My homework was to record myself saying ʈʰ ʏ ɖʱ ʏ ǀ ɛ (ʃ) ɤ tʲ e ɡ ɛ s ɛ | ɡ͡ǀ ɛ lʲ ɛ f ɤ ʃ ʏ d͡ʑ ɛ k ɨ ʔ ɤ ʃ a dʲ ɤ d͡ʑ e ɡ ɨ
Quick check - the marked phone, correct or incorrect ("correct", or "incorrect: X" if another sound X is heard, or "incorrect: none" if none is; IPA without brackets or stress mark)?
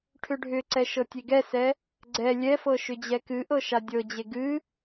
correct